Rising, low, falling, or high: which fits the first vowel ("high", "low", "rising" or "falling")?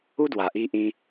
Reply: high